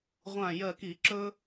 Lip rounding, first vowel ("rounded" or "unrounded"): unrounded